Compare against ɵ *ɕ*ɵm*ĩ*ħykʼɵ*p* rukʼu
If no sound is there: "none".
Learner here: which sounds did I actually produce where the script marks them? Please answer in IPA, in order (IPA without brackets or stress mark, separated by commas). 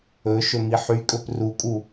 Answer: ʃ, i, p